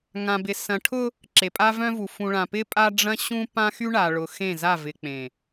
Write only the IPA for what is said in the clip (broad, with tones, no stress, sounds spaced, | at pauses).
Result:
ŋ ã˨ b ɪ˨ s ɐ̃˨ ʈʰ ʊ˦ | ǁ e˨ pʼ a˦ v œ̃˦ v u˨ f ũ˨ ɭ ã˨ p ɪ˦ pʼ a˦ ɖ͡ʐ ɐ̃˦ ɕ ũ˦ p ã˦ x y˦ ɳ a˨ ɭ ʊ˨ x ẽ˦˨ z a˦˨ v ɪ˨ k͡p ẽ˨